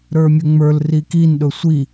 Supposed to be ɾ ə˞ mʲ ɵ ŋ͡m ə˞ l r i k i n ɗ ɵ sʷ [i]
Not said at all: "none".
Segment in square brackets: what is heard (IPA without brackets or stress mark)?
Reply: i